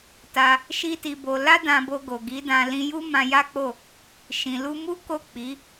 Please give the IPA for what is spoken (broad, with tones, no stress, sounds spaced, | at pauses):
t a˧ | ʃ i˦ t i˧ b o˧ l a˦ d ã˧ b o˧ ɡ o˨ ɡ i˨˦ d ã˧ l ĩ˧ j u˦ m ã˧ j a˦ k͡p o˦˨ | ʃ ĩ˨ l u˧ m u˦ k o˦˨ k͡p i˨˦